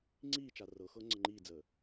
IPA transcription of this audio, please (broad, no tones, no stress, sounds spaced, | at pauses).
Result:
ŋ͡ǀ iː t͡ʃ a r ɤ x ɤ ŋ͡ǀ ə ŋ͡ǃ iː d͡z əː